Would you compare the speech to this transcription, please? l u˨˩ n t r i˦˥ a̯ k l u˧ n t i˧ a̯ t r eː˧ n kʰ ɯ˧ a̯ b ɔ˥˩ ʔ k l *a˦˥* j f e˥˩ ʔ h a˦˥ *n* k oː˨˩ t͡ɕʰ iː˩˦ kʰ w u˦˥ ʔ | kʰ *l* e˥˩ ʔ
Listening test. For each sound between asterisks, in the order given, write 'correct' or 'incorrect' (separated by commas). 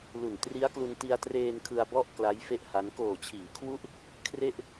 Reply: correct, correct, incorrect